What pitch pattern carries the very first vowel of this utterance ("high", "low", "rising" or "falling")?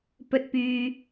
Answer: rising